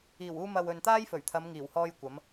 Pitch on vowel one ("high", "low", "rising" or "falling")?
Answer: low